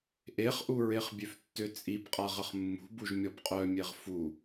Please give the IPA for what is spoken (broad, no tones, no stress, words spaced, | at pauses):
ʔeχʔuɹeχ bʲøftːøt͡sʼibqʼa ʁəχmːṳbuʒmʲɔb qʼœmʲeʁ fu